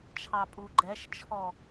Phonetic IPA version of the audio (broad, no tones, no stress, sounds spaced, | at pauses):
t͡ʃʰ ɑ pʼ u ɡ͡ǃ ɛ ʃ t͡ʃʰ ɔ